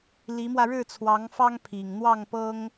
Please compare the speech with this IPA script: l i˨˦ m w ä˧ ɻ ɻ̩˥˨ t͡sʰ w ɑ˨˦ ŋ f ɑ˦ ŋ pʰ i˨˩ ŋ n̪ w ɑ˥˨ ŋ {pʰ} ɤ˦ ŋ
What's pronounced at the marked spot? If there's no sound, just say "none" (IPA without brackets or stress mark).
p